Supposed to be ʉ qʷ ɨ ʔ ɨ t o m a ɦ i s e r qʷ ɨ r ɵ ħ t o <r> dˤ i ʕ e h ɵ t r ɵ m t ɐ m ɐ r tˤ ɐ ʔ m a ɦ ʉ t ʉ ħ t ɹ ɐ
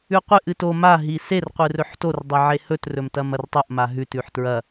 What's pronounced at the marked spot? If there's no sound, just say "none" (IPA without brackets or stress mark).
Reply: r